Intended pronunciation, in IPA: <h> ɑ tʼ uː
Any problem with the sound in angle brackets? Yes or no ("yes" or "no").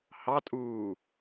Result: no